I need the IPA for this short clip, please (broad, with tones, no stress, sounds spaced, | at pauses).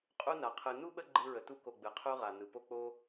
qʼ u˦ n a˩ qʰ ɯ˨ n u˥ ɓ ə˦ ɡ͡ǃ ɯ˦ ɹ ə˩ t u˥ k o˨ ɡ͡b ɯ˩ qʰ u˦ ʁ a˩ n ɯ˩ p o˦ k͡p o˦